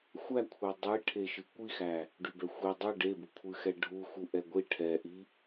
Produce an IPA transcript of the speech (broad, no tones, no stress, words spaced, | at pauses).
xʷækʷʰe dˤi ʈʰeʃɨkʷixæ | ɖybɛxʷi dˤɨ ɖebukʷʰɨxɛ ɖʱuxu ʔɛɡʷi ʈʰɛʔi